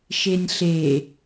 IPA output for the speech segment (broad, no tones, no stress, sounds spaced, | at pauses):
ʃ e nʲ ɬ e